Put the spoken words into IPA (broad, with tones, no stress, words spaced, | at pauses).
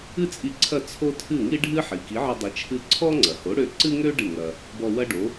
ɨ˥t͡sʼi˧ǀʰɐ˥˩ t͡sʰo˥ tʰɨ˥˩ŋi˥ ɖʱɨ˥ħi˩ ki˩˥ʕɐ˧dˤi˩˥ t͡ʃʰɨ˥ ǀʰɔ˥ŋ͡ǀɐ˩ho˩˥ɽø˧ ǀɨ˥ŋø˥ ɖɨ˥˩ŋɐ˧ | bɔ˧wɐ˥ɖo˩˥